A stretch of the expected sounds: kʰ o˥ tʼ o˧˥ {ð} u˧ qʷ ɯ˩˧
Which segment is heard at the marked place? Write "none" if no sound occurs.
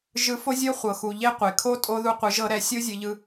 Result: ð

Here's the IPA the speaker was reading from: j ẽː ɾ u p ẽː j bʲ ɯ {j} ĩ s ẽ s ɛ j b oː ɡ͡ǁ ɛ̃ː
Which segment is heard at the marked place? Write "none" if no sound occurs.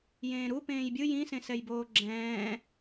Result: j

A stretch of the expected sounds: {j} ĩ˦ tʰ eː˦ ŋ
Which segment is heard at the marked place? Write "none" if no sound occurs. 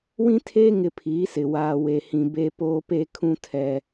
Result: w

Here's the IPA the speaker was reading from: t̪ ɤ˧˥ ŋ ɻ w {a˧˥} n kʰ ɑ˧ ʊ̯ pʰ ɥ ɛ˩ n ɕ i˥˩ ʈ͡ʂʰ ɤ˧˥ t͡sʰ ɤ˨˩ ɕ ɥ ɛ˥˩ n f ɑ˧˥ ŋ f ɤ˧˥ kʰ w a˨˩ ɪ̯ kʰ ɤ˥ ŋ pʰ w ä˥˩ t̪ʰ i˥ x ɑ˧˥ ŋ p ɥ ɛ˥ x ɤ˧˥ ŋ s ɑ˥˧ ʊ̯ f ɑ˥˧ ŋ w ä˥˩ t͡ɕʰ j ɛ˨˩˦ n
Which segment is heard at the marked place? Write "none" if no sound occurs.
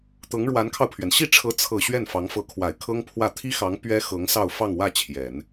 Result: a˧˥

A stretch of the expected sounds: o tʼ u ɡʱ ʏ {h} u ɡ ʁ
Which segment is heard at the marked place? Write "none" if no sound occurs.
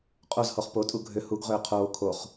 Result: h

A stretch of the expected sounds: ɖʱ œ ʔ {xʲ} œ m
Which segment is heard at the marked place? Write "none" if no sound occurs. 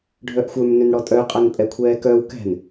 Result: xʷ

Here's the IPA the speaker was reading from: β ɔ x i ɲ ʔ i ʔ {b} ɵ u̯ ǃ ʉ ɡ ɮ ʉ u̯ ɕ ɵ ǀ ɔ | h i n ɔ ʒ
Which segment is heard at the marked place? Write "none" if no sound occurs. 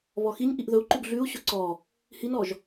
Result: ð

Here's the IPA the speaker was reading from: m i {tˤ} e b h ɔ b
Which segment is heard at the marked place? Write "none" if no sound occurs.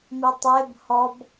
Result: tˤ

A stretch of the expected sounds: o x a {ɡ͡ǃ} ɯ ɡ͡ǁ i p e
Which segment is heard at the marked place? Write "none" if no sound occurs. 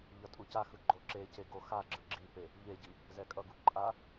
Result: ɡ͡ǁ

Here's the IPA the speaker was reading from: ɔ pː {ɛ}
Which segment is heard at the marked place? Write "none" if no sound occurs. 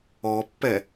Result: ɛ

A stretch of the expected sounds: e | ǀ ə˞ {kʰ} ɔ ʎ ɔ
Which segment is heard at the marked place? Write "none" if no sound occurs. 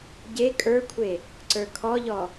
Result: kʰ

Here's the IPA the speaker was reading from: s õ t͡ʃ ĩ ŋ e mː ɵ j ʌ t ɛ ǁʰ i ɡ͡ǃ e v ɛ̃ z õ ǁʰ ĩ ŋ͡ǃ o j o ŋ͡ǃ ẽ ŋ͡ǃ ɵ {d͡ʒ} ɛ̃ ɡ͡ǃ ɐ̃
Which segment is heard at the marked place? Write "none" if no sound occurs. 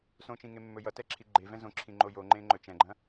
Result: t͡ʃ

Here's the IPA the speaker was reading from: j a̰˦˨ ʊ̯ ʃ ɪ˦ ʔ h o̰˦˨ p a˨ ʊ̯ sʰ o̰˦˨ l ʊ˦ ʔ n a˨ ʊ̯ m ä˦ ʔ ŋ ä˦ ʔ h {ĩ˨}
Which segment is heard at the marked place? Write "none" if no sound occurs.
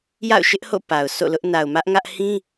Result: ĩ˦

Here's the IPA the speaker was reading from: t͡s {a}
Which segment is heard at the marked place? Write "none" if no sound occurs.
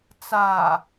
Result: a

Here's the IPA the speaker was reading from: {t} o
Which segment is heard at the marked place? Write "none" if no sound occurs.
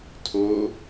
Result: tʰ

